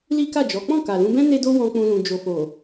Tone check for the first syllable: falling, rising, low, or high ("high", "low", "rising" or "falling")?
high